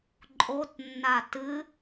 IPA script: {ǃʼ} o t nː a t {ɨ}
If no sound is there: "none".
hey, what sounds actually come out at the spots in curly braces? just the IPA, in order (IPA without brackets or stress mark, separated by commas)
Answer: ǃʼ, ɨ